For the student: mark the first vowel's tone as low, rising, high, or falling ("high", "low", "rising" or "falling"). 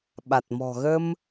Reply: low